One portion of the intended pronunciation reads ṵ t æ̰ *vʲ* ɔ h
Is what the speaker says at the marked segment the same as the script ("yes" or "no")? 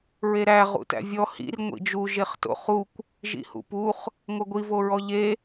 yes